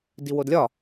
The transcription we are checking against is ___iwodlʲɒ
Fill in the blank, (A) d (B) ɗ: A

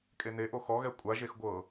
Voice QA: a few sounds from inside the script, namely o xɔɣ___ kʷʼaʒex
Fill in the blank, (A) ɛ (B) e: A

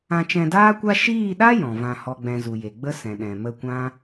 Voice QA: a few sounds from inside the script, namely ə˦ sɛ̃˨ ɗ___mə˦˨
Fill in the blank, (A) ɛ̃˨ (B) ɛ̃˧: A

